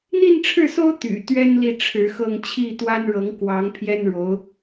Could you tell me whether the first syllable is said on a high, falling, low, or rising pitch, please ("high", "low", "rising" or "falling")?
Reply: falling